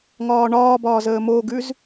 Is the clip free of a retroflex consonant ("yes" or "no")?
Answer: no